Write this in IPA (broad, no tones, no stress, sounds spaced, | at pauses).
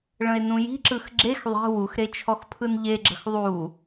ɭ ə̃ e̯ n ũ j i̤ ǁ ɯ x ɡ͡ǁ e x ðˤ e̤ w u x ɾ e t͡ʃʰ ɔ x pʰ ɯ n ʎ e ɡ͡ǁ ə̤ x ðˤ u